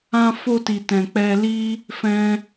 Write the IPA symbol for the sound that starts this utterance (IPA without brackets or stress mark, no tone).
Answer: ã